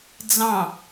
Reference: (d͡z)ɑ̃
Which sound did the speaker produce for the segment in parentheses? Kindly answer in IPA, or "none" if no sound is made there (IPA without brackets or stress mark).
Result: d͡z